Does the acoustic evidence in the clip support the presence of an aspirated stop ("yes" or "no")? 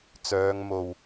no